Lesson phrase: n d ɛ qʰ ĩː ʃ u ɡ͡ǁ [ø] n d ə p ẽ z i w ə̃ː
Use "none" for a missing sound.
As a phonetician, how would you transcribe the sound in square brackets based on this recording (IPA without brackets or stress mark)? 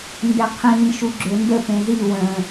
ø